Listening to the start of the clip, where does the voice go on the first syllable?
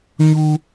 high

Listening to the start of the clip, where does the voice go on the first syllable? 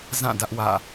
falling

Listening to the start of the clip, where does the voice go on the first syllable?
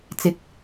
low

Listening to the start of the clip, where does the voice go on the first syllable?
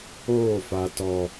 falling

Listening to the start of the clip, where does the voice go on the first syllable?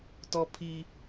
high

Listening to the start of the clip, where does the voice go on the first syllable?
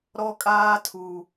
high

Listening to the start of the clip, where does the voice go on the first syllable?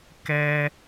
high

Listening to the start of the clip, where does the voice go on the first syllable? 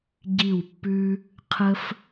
falling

